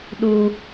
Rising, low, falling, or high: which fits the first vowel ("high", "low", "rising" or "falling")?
high